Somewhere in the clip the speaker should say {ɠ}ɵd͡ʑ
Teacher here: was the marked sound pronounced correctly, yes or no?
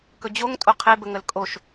no